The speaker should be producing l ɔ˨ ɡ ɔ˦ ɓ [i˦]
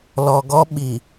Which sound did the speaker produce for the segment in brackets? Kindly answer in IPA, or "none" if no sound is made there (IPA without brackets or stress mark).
i˨